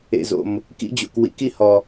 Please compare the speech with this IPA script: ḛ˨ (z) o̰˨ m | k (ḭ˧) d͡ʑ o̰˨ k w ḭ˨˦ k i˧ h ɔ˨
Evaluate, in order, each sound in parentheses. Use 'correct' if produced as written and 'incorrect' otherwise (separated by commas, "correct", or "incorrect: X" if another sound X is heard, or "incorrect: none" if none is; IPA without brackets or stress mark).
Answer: correct, correct